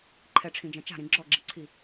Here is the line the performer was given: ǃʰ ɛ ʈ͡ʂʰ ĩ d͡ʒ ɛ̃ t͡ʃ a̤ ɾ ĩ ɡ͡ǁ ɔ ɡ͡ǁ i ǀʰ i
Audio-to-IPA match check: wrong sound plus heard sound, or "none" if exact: none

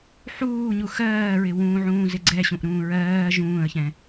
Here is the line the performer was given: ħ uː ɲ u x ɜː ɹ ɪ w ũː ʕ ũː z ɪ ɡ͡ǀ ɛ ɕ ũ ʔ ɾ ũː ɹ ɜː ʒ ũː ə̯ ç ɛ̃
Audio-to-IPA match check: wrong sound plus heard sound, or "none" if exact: none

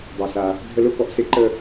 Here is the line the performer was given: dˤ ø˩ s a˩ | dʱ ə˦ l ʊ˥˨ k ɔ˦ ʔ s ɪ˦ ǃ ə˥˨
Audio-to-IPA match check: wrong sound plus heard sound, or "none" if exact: none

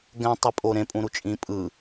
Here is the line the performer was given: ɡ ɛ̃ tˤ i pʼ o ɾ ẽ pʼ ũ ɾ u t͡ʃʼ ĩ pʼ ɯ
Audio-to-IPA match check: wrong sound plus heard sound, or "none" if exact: none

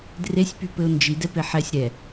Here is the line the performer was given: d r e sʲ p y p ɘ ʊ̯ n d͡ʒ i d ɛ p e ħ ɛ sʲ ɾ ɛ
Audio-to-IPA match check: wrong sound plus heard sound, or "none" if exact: none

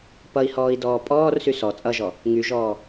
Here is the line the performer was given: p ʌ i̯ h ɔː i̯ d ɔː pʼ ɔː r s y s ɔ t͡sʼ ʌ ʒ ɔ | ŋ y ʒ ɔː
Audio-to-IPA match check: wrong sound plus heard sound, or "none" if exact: none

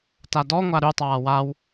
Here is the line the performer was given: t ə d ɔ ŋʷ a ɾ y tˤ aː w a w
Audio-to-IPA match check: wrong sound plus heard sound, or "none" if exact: ə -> a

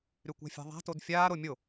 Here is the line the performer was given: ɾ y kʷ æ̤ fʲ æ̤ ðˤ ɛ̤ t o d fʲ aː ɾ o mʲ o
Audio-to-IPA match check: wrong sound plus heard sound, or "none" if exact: ɛ̤ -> æ̤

